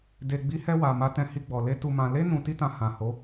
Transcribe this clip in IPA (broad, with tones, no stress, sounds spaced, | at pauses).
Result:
d e˨ ɡ͡b i˨˦ h ɛ˧ w a˨ m a˨˦ t ɛ̃˧ h i˧ ɡ͡b ɔ˨ l e˨˦ t u˧ m ã˧ l e˦ n ũ˧ t i˦ t ã˧ h ã˨ h o˨˦